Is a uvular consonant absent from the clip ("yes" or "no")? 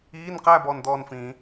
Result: no